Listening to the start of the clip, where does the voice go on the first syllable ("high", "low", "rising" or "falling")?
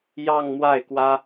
falling